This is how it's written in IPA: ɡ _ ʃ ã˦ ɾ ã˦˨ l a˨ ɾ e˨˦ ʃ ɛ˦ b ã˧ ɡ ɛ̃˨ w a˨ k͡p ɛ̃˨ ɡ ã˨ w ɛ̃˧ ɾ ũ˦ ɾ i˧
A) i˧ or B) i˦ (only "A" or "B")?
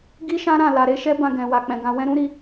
B